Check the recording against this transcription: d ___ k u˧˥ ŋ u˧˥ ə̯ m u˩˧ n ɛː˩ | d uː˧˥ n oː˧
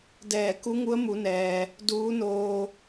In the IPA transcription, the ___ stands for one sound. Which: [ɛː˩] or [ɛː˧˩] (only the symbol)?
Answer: ɛː˧˩